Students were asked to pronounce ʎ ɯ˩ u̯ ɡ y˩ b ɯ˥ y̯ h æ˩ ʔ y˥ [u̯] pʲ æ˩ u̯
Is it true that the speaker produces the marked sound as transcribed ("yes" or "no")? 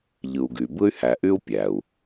yes